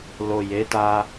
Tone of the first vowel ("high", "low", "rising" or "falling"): low